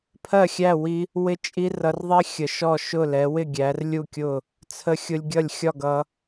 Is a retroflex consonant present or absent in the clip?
absent